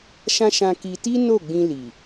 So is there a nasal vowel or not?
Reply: yes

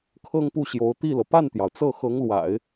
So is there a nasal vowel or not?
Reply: no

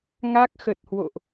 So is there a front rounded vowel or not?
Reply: no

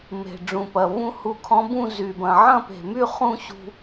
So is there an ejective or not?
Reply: no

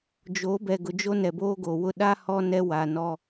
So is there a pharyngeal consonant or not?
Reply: no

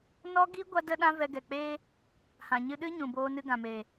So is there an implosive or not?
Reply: yes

